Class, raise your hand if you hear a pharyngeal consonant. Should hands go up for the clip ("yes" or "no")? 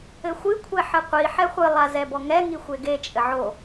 yes